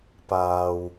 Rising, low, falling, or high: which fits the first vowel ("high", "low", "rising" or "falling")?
low